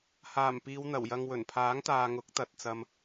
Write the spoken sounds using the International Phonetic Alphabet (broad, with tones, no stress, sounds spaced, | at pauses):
h aː˨˩ m p iː˨˧ w n̪ ɐ˨˩ w j ɐ˧ ŋ w ɵ˨˩ n pʰ aː˨˥ ŋ t̪ aː˨ ŋ ʊ˨˥ k̚ t̪ ɐ˨ t̚ t͡s ɐ˧ m